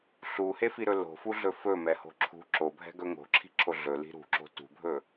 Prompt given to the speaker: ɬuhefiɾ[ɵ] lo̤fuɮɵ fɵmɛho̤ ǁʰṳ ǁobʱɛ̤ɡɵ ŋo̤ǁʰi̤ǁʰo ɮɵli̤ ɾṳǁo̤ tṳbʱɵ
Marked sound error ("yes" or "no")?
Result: no